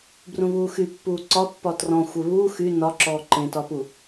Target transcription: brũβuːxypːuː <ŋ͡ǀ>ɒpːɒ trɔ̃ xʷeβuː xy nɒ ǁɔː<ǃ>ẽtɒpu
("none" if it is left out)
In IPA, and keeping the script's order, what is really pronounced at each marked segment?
ǀ, ǃ

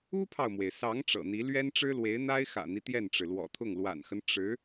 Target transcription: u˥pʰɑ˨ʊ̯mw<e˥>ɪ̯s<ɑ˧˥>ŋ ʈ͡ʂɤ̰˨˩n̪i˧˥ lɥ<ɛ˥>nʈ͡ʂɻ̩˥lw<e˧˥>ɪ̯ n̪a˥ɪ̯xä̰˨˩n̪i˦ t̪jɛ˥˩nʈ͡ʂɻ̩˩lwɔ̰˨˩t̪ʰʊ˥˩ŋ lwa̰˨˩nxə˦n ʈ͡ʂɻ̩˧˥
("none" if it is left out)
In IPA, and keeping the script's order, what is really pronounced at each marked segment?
e˩, ɑ˧˥, ɛ˥, e˧˥

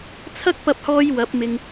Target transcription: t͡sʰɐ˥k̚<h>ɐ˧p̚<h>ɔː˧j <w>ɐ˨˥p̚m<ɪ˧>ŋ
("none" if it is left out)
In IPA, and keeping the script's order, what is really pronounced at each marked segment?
p, h, w, ɪ˧

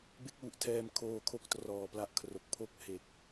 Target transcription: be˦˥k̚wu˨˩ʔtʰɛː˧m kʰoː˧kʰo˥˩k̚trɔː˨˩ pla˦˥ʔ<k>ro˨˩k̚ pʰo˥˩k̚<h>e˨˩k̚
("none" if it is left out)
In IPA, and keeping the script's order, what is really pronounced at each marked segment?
kʰ, h

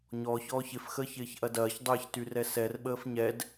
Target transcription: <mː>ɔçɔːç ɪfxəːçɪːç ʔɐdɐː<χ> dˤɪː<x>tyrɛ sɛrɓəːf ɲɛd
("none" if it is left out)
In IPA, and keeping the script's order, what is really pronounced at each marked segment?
ɲ, ç, ç

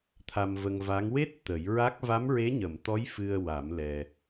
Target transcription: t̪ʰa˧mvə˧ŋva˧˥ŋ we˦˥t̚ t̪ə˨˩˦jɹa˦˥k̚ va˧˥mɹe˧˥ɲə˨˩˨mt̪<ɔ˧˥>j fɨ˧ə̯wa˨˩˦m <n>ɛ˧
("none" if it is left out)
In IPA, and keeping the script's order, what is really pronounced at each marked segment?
ɔ˧˥, l

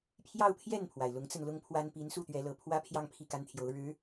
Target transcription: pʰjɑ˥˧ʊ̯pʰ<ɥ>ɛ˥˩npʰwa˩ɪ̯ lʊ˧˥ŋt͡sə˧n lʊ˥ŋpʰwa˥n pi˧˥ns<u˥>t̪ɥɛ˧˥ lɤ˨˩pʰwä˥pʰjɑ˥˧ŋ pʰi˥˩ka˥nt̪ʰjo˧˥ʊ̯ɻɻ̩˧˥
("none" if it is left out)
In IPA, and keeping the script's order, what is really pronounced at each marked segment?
j, u˥˩

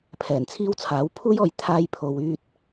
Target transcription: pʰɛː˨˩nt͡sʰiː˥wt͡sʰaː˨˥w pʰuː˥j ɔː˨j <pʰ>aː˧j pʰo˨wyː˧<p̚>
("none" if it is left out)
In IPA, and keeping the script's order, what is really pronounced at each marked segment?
t̪ʰ, t̚

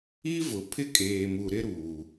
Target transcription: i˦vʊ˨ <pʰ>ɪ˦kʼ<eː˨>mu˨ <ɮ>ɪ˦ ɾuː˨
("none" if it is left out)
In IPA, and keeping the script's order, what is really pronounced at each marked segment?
pʰ, eː˨, ɾ

